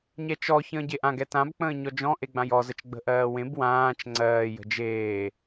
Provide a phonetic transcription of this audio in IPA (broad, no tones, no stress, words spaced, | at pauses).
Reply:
ɲɛt͡ʃɔ çə̃ːɟeʔã ɡɛtãb k͡pə̃ːɲɔd͡ʒɔ̃ ʔeɡ͡bãjɔ zət͡ʃɡ͡bə̤ʔɜːwẽb wãːt͡ʃ ŋ͡ǀɜː jə̤d͡ʒeː